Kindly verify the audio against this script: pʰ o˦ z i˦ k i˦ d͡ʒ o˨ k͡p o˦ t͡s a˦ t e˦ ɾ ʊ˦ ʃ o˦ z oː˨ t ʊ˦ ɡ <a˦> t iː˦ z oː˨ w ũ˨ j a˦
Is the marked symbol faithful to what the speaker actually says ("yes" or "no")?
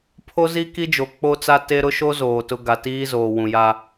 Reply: no